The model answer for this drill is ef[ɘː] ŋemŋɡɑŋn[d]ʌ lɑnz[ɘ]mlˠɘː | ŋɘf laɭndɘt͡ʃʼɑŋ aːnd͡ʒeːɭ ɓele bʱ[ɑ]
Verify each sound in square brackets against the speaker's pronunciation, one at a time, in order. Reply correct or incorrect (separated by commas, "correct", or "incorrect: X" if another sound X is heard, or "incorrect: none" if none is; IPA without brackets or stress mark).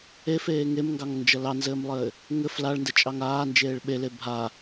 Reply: incorrect: eː, incorrect: d͡ʒ, incorrect: ɘː, incorrect: a